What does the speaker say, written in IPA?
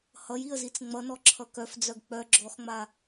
h ʌ j i ə̯ z i t͡s ŋ͡m ʌ n ɔ ǁʰ ʌ k œ f d͡z œ ɡ k͡p œ ɡ͡ǁ ɔ x ŋ͡m a

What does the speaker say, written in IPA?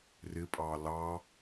r ɪ pʼ ɑ l ɑ

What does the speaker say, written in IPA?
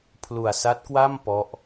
pʰ l u˨˩ a̯ s a˦˥ t̚ k w a˥˩ m p ɔ˦˥ ʔ

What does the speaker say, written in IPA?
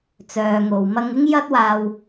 t͡s œː˨ ŋ o˨ w m ɐ˧ ŋ ɪ˥ ŋ j ɐ˥ t̚ w aː˧ w

